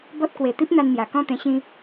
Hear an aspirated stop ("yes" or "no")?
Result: no